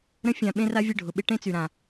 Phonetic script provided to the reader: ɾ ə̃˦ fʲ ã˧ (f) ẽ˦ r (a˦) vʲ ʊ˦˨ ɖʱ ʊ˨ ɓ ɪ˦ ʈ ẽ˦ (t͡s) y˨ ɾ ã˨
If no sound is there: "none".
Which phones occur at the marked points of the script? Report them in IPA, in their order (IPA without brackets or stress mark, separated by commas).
ɓ, a˦, t͡s